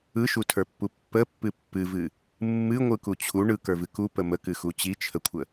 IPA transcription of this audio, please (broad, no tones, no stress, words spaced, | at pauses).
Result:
ɯʃutʰə˞pːu pːəpːɨ pːɨvɨ | mːɨŋʷɯku t͡ɕʰu ɳɯkə˞vɨ kupə məkɨxu t͡ɕit͡ʃʰəkʷʰə